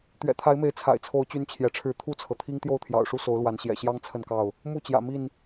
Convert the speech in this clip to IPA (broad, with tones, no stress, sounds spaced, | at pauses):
t̪ ɥ ɛ̰˨˩ t̪ʰ a˨˦ ɪ̯ m e˨˦ ɪ̯ t͡sʰ a̰˨˩ ɪ̯ t͡sʰ o˨˦ ʊ̯ t͡ɕ y˦ n t͡ɕʰ j ɛ˨˦ ʈ͡ʂʰ ɻ̩˥˨ t̪ʰ u˥˨ t͡sʰ ɤ˩ t̪ʰ i˦ ŋ t̪ j o˥˨ ʊ̯ t̪ʰ j ɑ̰˨˩ ʊ̯ ʂ u˦ s o˨˦ ʊ̯ l w a˨˦ n ɕ j ɛ̰˨˩ ɕ j ɑ˦ ŋ t͡sʰ ə˥˨ n k ɑ˥˨ ʊ̯ | m u˥˨ t͡ɕ j ä̰˨˩ m i˥˨ n